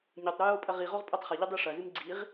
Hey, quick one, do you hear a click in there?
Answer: yes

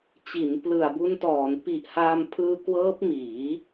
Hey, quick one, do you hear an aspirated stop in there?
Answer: yes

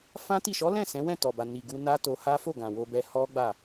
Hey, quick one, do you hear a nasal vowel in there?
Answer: yes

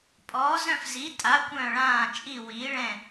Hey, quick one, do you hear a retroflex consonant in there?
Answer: yes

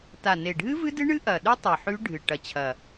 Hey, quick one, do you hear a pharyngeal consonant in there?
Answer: yes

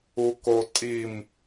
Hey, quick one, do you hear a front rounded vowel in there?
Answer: no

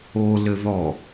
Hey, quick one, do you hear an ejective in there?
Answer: no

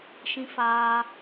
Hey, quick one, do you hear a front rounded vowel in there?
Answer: no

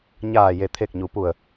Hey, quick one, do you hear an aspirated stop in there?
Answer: yes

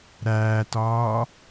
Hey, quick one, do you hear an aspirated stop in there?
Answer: no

